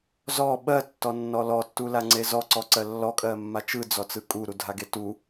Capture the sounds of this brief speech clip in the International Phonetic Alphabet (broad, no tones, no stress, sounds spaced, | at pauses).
z ɔ ɓ ɜ tː ɔ nː ɔ l ɔ tː u l a ŋ͡ǀ e z ɔ ǀ ɔ ǀ ɜ lː ɔ kʼ ɜ mː a t͡ʃ ɯ d͡z ɔ t͡s ɯ kʼ u ɾ u dʱ a ɡ e t u